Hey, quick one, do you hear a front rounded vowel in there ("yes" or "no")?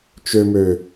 yes